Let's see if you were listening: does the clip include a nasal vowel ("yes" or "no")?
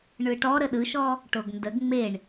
no